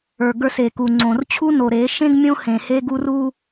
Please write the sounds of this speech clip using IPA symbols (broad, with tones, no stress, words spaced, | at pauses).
ə˞˨ɡə˞˦se˨ ku˨ŋ͡ǀõ˨rt͡ɕʰu˦ no˨ɾe˨˦ ʃẽ˦ɡ mʲõ˦ hẽ˨he˦ɡu˦ ru˦